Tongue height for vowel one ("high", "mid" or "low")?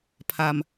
low